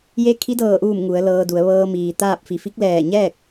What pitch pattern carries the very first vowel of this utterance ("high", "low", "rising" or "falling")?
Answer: rising